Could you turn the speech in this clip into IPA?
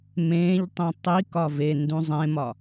m ẽː ʎ tˤ ĩ tˤ i k ɒ v e n d ũ zˤ ẽ m ɒ

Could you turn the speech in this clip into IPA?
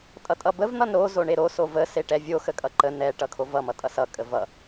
tʼ ʌ tʼ ʌ b ə v n̪ ʌ n ɾ o z o ɳ e ɾ o s o v ə s e ʈ ɛ vʲ o x ə kʼ ʌ ǃ ə n ɛ ʈ ʌ kʰ o v ʌ m ʌ tʼ ʌ s ʌ kʼ ə v ʌ

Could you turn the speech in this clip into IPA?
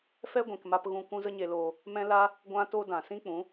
f ɛ˦ ɡʷ ĩ˨ k m a˧ p ɣ ũ˧ kʷ ũ˦ z ə˦ ɲ e˧ l oː˧ | m ɛ̃˦ l a˦ | ɡʷ ã˦ t o˦ d ã˨ s ĩ˦ k͡p ũ˨˦

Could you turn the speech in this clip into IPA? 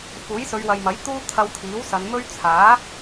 f uː˨˥ j s ɵ˨˧ ɥ w ɐ˨ j m ɐ˨˥ j t̪ uː˥ t̪ʰ ɐ˧ w t̪ʰ iː˨˥ w s ɐ˨˧ n m ɵ˥ ɥ t͡sʰ aː˨˥

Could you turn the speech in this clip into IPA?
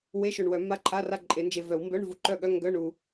w e˧˥˧ ʃ o˨ ɳ w œ˨˩˦ mː a˧˥˧ ǃʰ a˧˥˧ r a˦˨ ǃʼ e˨˩˦ n d͡ʒ e˨ v œ˨˩˦ w m b œ˧˥˧ ɳ v u˨ ǃ œ˦˨ ɠ œ˧˥˧ ŋ ɡ œ˧˥˧ ɳ u˨

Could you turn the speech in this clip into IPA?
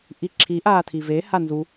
ʔ i ǁʰ i ʔ aː tʰ i v e h a n z u

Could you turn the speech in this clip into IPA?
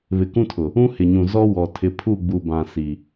β ɪ˨ k ũ˦ tʰ ʊ˨ | ũ˦ h ɪ˨ ɲ ũ˨ z ɔ˦ w ɔ˨ tʰ ɪ˨ pʰ u˦˨ ɡ͡b u˨ b ã˨ s i˨

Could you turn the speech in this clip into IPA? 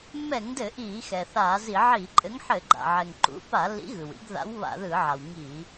mː ɛ˧˩˧ ŋ d ɘ˧˩˧ ʔ iː˧˩˧ x ɛ˩ θ aː˧˩˧ z i˧˩˧ ʕ iː˧˩˧ ǃʼ ɘ˨˥ ŋ ħ ɘ˧˩˧ ɡ͡ǃ a̰˩ ʕ ɛ˩ ŋ ǃ ṵ˨˥ p a˧˩˧ lː ḭ˨˥ ɣ ɯ˩ w ḭ˨˥ ɡ ð a̰˨˥ w β a̰˧˩˧ ð ɯː˧˩˧ ʕ a˩ w ŋ i˧˩˧

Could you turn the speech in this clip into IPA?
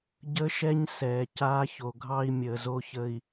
ɟ ə˦ ʃ ɛ˦ ɲ s ɛː˨ c aː˦ ç o˨ ɡʱ ɑ˦ i̯ mʲ əː˨ z o˦ ç ə˨ i̯

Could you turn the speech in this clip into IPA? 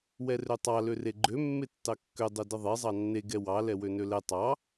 w ɛ r ø tˤ ɑ l ø r e ɡ͡ǃ ø mː e tː ɑ kː ø dˤ ø d ə ðˤ e zˤ ɑ nː e ɡ ɛ w ɑ l ɛ w ø n ø l ɛ tˤ ɑ

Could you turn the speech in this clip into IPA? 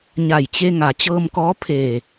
ɲ a˧˩ j t͡ɕ e˧ ŋ a˩˧ t͡ɕ ɤː˧ m k ɔː˧˥ pʰ eː˧˩

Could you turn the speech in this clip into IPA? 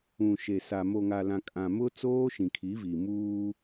ũ˨ ʃ e˨ s a˨ m o˨ ŋ a˨ l ã˨ kʼ ã˨ m ʊ˦ t͡s oː˦ ʃ ĩ˨ kʰ i˨˦ v i˨ m uː˦

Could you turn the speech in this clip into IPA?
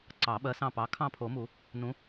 ǀ ɑ˨˩˦ ɓ ɜ˨˦ s ɑ̃˦˨ p ɑ˨˦ kʰ ɑ̃˦˨ pʰ o˨˩˦ m u˨˩˦ | n ũ˨˦

